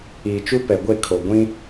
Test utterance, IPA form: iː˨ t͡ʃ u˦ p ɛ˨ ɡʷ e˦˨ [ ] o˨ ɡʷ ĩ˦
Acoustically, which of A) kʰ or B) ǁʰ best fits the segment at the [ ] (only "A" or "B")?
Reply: A